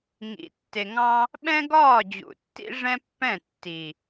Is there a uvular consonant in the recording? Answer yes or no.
no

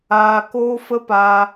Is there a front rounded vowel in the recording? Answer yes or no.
no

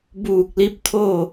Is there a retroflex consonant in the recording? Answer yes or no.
no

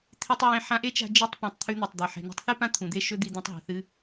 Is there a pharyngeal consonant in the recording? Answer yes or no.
yes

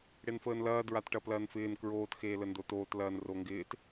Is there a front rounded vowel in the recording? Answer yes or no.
no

